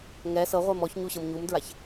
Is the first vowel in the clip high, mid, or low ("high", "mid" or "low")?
mid